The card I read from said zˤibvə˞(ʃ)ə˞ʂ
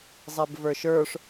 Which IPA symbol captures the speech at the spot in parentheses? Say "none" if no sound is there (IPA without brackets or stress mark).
ʃ